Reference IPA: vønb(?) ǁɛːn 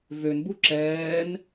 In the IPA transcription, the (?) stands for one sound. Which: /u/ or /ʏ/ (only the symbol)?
u